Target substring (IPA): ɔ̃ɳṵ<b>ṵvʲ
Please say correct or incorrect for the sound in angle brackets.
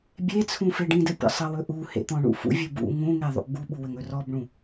incorrect